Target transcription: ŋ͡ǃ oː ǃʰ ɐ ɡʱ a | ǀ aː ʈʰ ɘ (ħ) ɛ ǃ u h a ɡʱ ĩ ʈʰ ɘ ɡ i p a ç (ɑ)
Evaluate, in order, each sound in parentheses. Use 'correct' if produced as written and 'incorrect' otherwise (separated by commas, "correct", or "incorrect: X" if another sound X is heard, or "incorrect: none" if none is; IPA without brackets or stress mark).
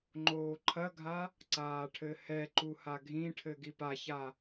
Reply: incorrect: h, incorrect: a